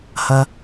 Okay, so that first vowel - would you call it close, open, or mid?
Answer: open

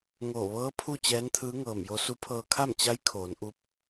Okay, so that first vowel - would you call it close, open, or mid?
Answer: mid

